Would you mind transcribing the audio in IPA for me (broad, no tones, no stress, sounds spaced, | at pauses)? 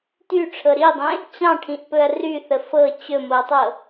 t y ʈ͡ʂʰ ɤ ɾ i dˤ ẽ | t͡ɕ ɑ̃ ʈʰ ĩ ʔ p ɵ ɐ̯ r y θ ə f ɤ t͡ɕ ɵ m o ɐ̯ tˤ ɤ